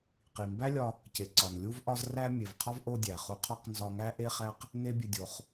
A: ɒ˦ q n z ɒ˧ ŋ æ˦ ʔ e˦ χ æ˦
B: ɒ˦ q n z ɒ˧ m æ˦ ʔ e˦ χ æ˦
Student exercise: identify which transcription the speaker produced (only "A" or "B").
A